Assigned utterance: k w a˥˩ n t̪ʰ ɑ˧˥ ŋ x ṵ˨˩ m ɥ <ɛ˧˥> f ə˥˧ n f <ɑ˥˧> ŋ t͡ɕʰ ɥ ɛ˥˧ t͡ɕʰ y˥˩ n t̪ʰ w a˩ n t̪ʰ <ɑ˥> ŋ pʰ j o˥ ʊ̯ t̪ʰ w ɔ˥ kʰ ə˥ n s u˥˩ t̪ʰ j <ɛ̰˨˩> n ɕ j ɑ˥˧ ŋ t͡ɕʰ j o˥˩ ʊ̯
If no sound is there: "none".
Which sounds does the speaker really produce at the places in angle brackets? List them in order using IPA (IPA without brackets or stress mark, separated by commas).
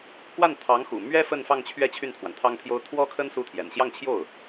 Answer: ɛ˥, ɑ˥˧, ɑ˥, ɛ̰˨˩